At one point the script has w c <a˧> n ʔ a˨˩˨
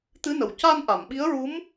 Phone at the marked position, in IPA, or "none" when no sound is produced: a˧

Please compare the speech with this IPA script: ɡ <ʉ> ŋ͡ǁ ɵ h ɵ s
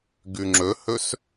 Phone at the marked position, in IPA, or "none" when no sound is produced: ʉ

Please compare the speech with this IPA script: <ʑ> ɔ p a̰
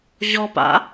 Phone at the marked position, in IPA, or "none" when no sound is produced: ʑ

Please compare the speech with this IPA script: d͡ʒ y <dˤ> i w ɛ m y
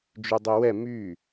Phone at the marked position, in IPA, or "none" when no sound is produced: dˤ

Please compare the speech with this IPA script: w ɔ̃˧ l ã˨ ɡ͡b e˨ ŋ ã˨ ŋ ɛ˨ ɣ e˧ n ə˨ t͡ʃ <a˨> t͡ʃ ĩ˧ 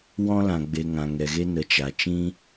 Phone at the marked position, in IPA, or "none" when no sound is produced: a˨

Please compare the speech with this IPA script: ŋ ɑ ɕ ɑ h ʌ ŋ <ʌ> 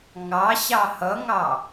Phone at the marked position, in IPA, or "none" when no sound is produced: ɑ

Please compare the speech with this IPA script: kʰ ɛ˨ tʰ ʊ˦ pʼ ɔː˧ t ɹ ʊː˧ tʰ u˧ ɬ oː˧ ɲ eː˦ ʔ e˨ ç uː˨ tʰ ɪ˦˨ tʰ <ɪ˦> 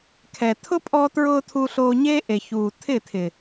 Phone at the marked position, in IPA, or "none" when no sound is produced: ɪ˨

